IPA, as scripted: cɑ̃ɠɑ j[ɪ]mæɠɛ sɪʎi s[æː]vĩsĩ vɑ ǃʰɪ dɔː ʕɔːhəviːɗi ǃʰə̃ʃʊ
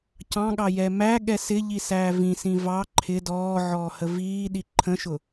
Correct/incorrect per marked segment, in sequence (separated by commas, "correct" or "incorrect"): incorrect, correct